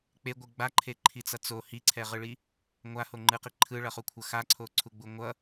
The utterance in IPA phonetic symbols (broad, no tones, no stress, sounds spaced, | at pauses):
k͡p e ɡʷ ɯ ɡ͡b a ǃʰ e ǃʰ i t͡s ʌ t͡s o h i ǀʰ ɛ ʁ ɯ ɭ i | ŋʷ a h o ŋ͡ǃ ɯ q i ǃʰ ɯ ɭ ʌ χ u kʷʰ ʌ x a ǀʰ o ǀʰ u ɡ͡b u ŋʷ ʌ